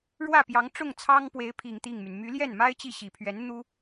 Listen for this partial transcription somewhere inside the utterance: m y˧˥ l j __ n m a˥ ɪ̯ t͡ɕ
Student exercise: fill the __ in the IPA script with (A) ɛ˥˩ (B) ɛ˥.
A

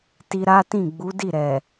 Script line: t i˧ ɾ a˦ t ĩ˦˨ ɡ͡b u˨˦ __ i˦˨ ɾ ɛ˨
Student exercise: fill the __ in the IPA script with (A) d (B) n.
A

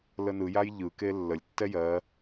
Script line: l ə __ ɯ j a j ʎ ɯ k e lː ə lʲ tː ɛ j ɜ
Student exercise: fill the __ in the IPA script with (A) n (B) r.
A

